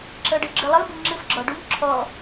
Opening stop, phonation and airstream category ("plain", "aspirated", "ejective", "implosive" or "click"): click